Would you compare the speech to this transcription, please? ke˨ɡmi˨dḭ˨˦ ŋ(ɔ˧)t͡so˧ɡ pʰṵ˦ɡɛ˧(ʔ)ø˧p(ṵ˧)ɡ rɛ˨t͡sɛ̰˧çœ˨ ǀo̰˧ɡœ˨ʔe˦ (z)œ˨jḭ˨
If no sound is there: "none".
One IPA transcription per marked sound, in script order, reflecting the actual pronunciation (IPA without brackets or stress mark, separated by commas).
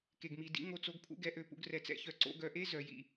o˧, ʔ, ṵ˧, z